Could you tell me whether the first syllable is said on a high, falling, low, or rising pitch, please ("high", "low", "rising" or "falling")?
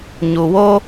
low